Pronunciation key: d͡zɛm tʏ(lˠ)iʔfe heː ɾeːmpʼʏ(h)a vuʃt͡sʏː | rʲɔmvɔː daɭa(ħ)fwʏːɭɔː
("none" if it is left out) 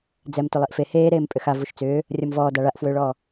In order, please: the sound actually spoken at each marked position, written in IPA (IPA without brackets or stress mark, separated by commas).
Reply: lˠ, x, ʔ